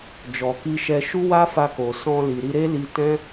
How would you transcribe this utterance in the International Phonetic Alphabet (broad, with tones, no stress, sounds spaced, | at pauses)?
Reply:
d͡ʒ ɔ˨ k i˧ ʃ ɛ˧ ʃ u˦ w a˦ f a˧ k o˨ s ɔ̃˧ l i˨ ɾ i˧ ɾ e˦ l i˧ t ɛ̃˦